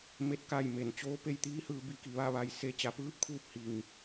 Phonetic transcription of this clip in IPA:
m e˥˨ t̚ k a˥˨ j m e˩ n t͡ɕ oː˧˥ p e˥˨ j t̪ iː˧˥ h ɯː˧ b i˧ k i˩ ʋ a˥˨ ʋ a˧ j s e˧˥ t͡ɕ a˩˧ p ɯː˧˥ p̚ kʰ uː˥˨ p̚ h i˩ ŋ

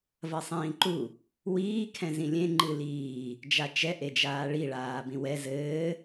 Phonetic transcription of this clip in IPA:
v ɐ sˤ ĩː ǃ u | w iː kʰ ɛ̃ z ĩ lʲ ẽ ŋ͡ǃ ɨ l iː | d͡ʒ a t͡ʃ ɛ ʔ e d͡ʒ aː ɭ i ɭ aː b ĩ w ɛ z ɘː

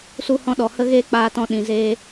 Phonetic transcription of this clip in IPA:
s u˦ h ɔ̃˦ ɗ ɔ˨ h ə˦ ɣ eː˦ k͡p aː˧ t ɔ̃˧ ɗ ĩ˨ z eː˧

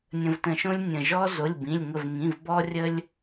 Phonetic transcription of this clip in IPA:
nʲ ə̃˩ v t ə̃˩ ʃ õ˧ lʲ nʲ ə̃˩ ʒ ɔ˧ z o˩˧˩ lʲ b ĩ˩˧˩ lʲ ŋ ə˧˩ v ŋ ĩ˩˧˩ v b ɔ˧ rʲ ə˧ lʲ

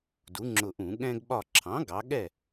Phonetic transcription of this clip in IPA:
d u˩˥ ŋ͡ǁ ʊ˧˩ ʔ ũ˧˩˧ ɠ ɛ̃˧ ɡ ɓ ɒ˧˩ ǁʰ ɑ̃˩˥ ɡ ɑ˩˥ ɠ ɛ˥˩

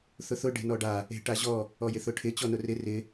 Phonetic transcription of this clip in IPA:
θ ʊ θ ʊ ɖ e̤ n ɔ ɖ a | e̤ ʈ a ʑ ɔ | ɔ j ɪ θ ʊ ʈʰ ɪ t͡ɕ ɔ n ʊ r ɪ r ɪ

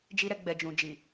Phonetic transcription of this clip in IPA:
d͡ʒ i˧ ɾ ɛ˧ ɡ͡b ɛ˨ d͡ʒ ũ˨ d͡ʒ i˨

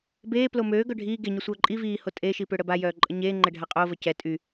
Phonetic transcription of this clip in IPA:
b eː p l o m øː ɡ œ ɖʱ iː ɡ e ɲ o sʷ œː ǃʼ i v iː h o tʼ e ʃ i p ø ɽ ə b a j œː ǃʼ ə ɲ eː ŋ͡ǃ ɛ ɖʱ a qʼ o v ə c ɛ tʼ y

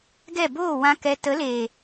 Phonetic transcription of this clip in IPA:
ɡ ɛ˦˨ b oː˦˨ w ã˦ k ɛ˧ t ə˨˦ l eː˨

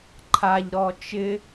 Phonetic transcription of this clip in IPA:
ǃʰ a ʎ ɾ ɔ t͡ʃ ɪ

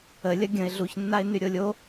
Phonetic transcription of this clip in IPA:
ə lʲ ɐ ɡʲ ə̃ ɪ̯ ɮ u ç nː a ɪ̯ n y ɾʲ o lʲ o

